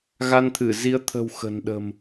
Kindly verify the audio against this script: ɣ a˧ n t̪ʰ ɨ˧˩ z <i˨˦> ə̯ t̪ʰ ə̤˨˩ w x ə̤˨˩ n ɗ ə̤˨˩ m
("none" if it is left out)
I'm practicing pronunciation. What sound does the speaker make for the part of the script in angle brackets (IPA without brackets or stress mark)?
i˨˦